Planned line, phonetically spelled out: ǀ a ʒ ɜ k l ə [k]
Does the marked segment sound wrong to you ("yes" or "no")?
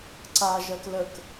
no